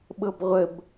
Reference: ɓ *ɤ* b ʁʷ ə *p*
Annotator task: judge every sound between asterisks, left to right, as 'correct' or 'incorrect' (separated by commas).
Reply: correct, incorrect